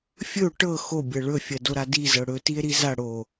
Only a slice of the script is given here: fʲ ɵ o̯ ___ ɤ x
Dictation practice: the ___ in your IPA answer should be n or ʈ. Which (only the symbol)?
ʈ